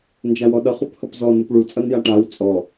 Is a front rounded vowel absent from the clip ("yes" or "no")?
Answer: yes